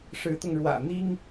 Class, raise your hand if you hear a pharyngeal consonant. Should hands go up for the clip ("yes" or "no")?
no